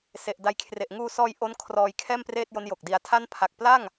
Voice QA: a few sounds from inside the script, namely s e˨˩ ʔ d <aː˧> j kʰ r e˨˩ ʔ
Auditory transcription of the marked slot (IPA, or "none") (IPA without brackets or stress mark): a˧